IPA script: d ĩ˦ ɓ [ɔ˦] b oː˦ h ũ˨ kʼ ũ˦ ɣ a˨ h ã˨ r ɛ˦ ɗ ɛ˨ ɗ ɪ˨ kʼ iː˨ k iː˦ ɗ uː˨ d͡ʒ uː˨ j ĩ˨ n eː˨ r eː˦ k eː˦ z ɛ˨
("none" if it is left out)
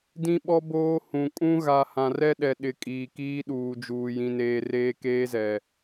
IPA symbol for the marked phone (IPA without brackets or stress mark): ɔ˦